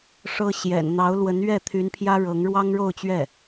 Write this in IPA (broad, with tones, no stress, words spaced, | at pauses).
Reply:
ʂɤ˥ ɕjɛ̰˨˩nn̪ɑ˧˥ʊ̯lwə˧˥n ɥɛ˥˩t̪ʰy˧˥npʰjä˥ɻɤ˧˥ŋ ɻwɑ˥ŋɻo˥˧ʊ̯t͡ɕɥɛ˥˩